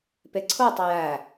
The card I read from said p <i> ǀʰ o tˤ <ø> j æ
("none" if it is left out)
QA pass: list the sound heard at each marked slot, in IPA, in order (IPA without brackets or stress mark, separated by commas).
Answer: e, ø